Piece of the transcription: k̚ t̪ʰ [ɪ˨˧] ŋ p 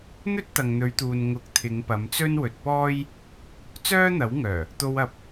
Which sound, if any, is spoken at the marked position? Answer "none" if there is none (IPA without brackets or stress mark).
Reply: ɪ˨˧